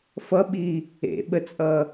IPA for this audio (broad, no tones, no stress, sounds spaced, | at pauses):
f ʌ ɓ i | ḛ ɓ ə t͡sʼ ʌ